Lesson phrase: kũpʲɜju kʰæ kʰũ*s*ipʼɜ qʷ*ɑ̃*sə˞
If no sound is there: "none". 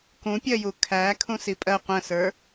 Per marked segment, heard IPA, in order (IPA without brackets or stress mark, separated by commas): s, ə̃